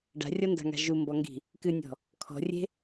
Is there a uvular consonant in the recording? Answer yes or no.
no